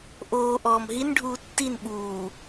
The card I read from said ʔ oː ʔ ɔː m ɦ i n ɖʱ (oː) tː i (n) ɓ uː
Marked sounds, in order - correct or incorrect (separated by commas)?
incorrect, correct